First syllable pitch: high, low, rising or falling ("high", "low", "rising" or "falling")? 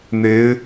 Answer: rising